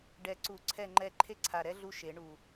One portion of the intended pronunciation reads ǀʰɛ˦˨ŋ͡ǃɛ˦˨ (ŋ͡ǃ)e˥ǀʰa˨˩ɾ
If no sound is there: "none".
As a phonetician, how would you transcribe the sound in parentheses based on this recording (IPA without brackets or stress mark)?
ǃʰ